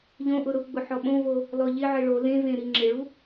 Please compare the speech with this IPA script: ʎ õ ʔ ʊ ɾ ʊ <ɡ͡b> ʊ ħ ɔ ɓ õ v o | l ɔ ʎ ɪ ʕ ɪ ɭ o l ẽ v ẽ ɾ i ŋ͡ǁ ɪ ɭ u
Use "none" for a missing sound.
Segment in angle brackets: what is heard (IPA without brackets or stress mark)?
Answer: ɡ͡b